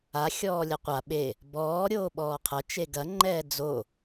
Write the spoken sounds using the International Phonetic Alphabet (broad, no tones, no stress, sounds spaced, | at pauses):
a xʲ ɔː lʲ ɐ qʷ a ɓ e | b ɔː ɾʲ oː ɓ ɔː qʰ ɐ t͡ʃ e ɡ ɐ ŋ͡ǃ ɛː d͡z o